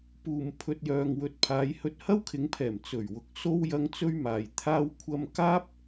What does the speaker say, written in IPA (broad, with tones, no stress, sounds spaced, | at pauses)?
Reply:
p uː˨ m pʰ ɵ˧ t̚ j œː˨ ŋ w ɵ˨ t̚ pʰ aː˨˧ j h ɵ˧ t̚ h ɐ˥ w kʰ ɪ˨˧ ŋ pʰ ɛː˨˩ m t͡s ɵ˨˩ ɥ w ʊ˨ k̚ s o˥ w j ɐ˧ ŋ t͡s ɵ˥ ɥ m aː˨ j t̪ʰ aː˥ w kʷʰ ɐ˥ m k aː˥ p̚